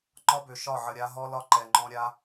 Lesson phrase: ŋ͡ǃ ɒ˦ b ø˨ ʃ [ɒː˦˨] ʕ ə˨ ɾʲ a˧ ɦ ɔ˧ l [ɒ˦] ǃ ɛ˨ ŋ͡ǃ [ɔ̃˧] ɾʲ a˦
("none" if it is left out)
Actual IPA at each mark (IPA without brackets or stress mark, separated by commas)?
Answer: ɒ˦˨, ɒ˧, ɔ̃˧